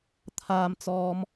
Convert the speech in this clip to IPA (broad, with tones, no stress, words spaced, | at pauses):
t̪ʰaː˨mt͡sɔː˨˧m